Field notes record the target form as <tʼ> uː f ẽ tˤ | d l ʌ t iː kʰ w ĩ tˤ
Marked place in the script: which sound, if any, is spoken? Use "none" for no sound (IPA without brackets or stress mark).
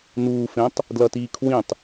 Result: n